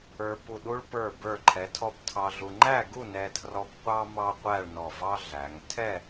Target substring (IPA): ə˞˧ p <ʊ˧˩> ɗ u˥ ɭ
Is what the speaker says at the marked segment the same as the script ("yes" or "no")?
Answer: no